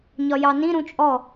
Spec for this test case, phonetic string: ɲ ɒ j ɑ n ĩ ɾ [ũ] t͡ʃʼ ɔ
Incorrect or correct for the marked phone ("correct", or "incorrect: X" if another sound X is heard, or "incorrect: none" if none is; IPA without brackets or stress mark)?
correct